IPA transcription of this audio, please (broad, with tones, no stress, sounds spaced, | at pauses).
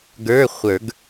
ɡ ə˞˧˥˧ χʷ ə˞˨˩˦ ɡ